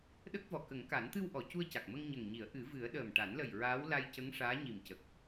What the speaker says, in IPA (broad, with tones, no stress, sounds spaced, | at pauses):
ɗ ə˦˥ k̚ v ɔ˨˩ k ə˨˩˦ ŋ k a˨˩˦ n t̪ ɨ˧ w ʔ ɔ˨˩˨ c u˧ ə̯ c a˨˩ k̚ m ə˧ ŋ ɲ ə˨˩ ŋ ɲ i˨˩˦ ə̯ ʔ ɨ˨˩˦ v ɨ˨˩˦ ə̯ ɗ əː˨˩ m ʈ a˨˩˦ n l ə˨˩ j ɹ aː˧˥ w l a˧ j c ə˧˥ ŋ ʂ aː˧˥ ɲ i˨˩ m c ə˨˩ k̚